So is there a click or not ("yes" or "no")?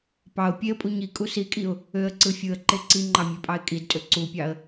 yes